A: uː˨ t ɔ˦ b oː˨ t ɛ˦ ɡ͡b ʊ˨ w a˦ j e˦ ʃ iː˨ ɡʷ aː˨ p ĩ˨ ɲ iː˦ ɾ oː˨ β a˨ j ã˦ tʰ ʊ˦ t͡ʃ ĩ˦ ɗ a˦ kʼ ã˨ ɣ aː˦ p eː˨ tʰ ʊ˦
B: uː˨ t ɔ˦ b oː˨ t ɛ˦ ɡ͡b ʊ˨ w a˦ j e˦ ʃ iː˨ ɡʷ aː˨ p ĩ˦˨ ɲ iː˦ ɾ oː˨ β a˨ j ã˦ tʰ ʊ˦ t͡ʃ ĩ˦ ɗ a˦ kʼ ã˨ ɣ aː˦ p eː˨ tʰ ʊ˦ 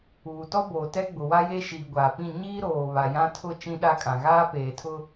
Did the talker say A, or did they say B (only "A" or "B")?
B